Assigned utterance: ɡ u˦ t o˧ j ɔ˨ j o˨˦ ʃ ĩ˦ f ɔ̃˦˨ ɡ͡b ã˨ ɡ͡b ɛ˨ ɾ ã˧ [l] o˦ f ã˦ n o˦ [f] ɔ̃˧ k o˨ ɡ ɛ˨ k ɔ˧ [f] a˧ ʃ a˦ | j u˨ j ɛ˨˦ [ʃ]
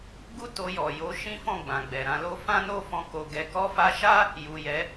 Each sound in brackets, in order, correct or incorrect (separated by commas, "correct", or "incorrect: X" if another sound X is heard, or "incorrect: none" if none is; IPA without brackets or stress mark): correct, correct, correct, incorrect: none